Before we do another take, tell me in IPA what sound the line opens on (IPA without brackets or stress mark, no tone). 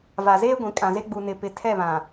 v